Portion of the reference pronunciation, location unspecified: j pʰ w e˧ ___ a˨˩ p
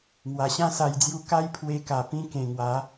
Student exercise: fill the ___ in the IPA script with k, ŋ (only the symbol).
k